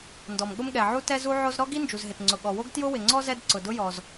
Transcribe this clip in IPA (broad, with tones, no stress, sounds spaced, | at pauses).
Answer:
n d ɔ˩ m ɠ ʊ˥ m ɠ ɛ˩ ʕ u˥ t ɛ˥ z u˥ ʕ o˥ z ɾ ɔ˥ ɡ i˥ n d͡ʒ u˩ z ɦ ɪ˩ t ŋ͡ǀ ʊ˩ ɠ ɔ˩ w o˥ ɡ t j ʊ˥ w ɪ˩ ŋ͡ǀ ɔ˥ z ɛ˥ d ǀ ʊ˩ d ʊ˥ j ɔ˩ z